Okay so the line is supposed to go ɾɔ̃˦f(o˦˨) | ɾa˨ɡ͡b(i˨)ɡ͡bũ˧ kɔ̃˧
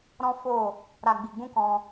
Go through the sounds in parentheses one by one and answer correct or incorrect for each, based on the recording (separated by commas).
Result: correct, correct